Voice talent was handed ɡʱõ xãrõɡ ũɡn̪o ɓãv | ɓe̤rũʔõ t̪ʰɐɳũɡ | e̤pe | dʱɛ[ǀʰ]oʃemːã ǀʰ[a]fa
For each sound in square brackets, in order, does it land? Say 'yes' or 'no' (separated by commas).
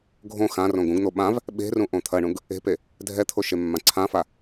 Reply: no, no